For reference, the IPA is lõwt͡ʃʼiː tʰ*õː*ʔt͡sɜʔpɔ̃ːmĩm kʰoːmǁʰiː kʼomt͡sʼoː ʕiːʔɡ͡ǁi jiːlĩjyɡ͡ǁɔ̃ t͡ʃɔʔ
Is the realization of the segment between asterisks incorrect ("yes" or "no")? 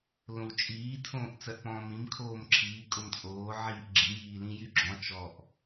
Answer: no